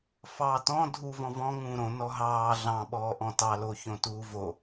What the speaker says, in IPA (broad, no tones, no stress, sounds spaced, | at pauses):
f ɑː t ɔ̃ dʱ u v ɔ̃ v ɔ̃ ŋ ũː ɾ õ n ɔ ɦ ɑː ɮ ɑ̃ ɓ ɔː ʔ ɔ̃ t ɑ l o ç õ t uː v o